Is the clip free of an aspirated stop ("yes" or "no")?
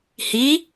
yes